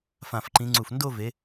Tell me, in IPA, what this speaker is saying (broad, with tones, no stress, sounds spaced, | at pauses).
f ã˧˩ f ǃ ĩ˨˦ ŋ͡ǀ u˧˩ f n d o˥˧ v e˨˦